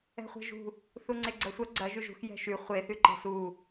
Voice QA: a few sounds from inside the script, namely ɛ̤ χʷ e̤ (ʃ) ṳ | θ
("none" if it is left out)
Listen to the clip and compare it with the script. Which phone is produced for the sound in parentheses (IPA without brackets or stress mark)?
ʒ